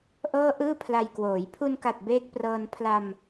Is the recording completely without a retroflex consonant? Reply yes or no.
yes